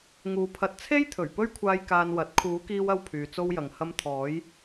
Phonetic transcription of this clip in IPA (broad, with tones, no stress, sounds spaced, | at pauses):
ŋ uː˨˧ pʰ ɐ˨ t̚ t͡sʰ e˥ j t̪ʰ ɵ˨˩ ɥ p ɵ˥ ɥ kʷʰ aː˧ j k aː˧ n w ɐ˨˥ t̚ kʰ uː˨˥ k iː˧ w ɐ˧ w pʰ yː˨ t͡s o˥ w j ɐ˨ ŋ h ɐ˥ m t̪ʰ ɔː˨˥ j